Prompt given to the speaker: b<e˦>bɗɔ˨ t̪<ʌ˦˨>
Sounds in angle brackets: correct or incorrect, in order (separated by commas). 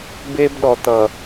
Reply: correct, incorrect